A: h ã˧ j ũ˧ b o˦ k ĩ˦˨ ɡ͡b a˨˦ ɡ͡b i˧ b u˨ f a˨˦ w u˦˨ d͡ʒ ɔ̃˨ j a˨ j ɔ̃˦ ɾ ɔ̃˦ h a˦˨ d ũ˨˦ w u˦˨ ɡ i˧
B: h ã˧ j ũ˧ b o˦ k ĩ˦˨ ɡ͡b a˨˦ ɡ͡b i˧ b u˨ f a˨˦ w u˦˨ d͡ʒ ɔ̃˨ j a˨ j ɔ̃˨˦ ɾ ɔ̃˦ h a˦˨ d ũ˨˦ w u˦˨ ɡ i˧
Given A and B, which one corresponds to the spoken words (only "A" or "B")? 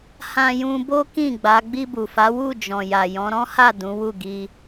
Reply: B